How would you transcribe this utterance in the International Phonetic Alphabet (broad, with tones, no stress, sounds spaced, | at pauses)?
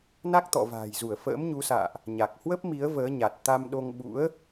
n a˦˥ k̚ t̪ ɔ̰˧˨ v a̤ː˨˩ j z u˧˩ ə̯ f ə̰ː˧˥ m ɲ u˨˦ s a̰ː˧˨ ʔ | ɲ a˨˩ k̚ h w ə˦˥ p̚ m i˨˦ ə̯ v əː˨˦ ɲ a˨˩ t̚ t̪ a˧ m ɗ o˧ ŋ ɓ ṵ˧˥ ə̯